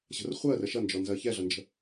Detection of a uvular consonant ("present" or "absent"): present